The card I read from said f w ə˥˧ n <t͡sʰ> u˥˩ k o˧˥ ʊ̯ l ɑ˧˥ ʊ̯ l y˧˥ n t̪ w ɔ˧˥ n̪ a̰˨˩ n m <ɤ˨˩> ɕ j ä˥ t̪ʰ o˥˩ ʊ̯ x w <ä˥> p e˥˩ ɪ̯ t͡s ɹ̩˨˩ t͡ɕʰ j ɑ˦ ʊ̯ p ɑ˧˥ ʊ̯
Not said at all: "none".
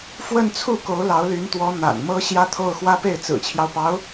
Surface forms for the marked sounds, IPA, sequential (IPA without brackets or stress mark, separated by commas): t͡sʰ, ɤ˥, ä˥